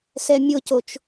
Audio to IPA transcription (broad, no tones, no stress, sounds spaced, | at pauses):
s ɛ mʲ ʊ c o t͡ʃ